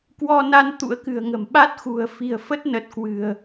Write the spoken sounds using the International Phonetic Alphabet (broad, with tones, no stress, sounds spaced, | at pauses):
k w ɔ˧ n a˧ n t̪ ṵ˧˥ ə̯ k ɨ̤˨˩ ə̯ ŋ ə̤˨˩ m ɓ a˦˥ t̚ x ṳ˨˩ ə̯ f i̤˨˩ ə̯ f ə˦˥ t̚ n ə˨˩ t̚ k w ɨ̤˨˩ ə̯